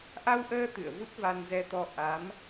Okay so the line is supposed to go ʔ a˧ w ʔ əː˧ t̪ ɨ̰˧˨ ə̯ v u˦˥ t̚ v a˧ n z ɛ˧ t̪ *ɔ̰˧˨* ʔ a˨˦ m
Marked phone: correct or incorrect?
incorrect